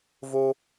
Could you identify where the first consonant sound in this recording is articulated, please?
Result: labial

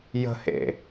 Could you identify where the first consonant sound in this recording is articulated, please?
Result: palatal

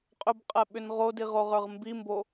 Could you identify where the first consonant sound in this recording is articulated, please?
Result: uvular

